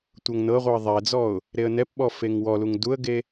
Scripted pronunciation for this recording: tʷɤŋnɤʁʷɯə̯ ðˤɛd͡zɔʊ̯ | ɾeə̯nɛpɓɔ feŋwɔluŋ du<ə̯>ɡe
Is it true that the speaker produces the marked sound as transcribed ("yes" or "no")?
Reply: yes